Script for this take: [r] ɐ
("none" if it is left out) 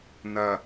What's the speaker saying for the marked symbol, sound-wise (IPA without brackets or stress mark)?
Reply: n